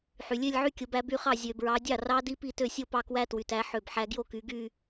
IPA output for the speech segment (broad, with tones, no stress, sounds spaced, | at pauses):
ħ y˨ lʲ ø˥˧ lʲ ʕ y˥˧ kʲ o˨˦ b æ˨˦ b y˥˩ χ ɑ˥˩ zʲ ø˨ b ɹ ɑ˨˦ dʲ ɑ˥˩ r ɑ˦˥ d i˦˥ p i˥˩ t ø˥˩ sʲ o˥˧ p ɑ˥˩ k w æ˦˥ t w y˨ t æ˨˦ ħ ø˥˩ b ħ æ˦˥ ɡ j o˥˩ k y˨˦ ɡ y˥˧